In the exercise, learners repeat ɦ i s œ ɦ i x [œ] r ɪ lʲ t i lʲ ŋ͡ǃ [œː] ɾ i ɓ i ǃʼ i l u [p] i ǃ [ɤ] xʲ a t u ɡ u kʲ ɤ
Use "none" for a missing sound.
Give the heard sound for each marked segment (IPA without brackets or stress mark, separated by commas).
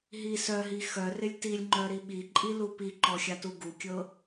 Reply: œ, œ, p, ɔ